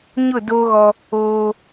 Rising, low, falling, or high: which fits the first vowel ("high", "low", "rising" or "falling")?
falling